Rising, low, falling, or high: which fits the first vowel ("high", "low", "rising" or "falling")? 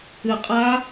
low